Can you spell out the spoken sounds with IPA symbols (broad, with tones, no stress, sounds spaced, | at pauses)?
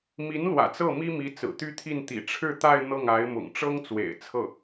m i˧˥ n l w ä̰˨˩ t͡s ɤ˥˩ m i˥ m i˧˥ t͡s ɹ̩˨˩ t̪ y˥ t̪ʰ i˥˩ n t̪ ḭ˨˩ ʈ͡ʂʰ ɻ̩˥˧ t̪ a˥˧ ɪ̯ n̪ ɤ˥˩ ŋ a˧˥ ɪ̯ m ʊ̰˨˩ ŋ ʈ͡ʂ ɤ˥ ŋ t͡s w ḛ˨˩ ɪ̯ t͡sʰ ɤ˥˩